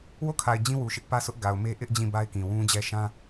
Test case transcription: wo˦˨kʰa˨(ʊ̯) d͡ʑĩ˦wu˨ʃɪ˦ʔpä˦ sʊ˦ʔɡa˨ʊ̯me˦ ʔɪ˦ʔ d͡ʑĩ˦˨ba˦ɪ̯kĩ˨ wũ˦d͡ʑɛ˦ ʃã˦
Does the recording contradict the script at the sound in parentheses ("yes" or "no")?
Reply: yes